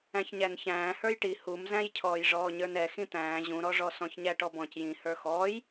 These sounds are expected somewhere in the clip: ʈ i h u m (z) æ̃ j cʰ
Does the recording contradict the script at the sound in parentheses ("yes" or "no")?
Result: no